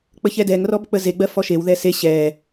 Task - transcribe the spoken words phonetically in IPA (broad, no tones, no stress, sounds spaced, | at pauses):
k͡p ə ç ɛ d ɛ ŋ r ɔ b k͡p ə z e ɡ͡b ɜ f ɔ ʃ e w ð ɛ s e ɕ ɛ